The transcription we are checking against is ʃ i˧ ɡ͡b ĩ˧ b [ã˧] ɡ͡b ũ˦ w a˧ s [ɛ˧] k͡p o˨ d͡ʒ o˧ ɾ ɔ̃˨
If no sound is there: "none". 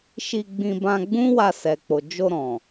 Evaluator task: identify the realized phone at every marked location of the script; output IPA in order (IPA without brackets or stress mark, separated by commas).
ã˧, ɛ˨